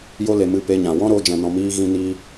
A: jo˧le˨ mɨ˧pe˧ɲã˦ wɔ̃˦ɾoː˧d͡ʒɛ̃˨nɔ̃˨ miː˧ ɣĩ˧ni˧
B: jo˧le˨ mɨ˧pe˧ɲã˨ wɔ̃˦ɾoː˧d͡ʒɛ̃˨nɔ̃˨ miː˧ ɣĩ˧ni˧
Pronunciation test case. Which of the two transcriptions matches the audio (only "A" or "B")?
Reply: B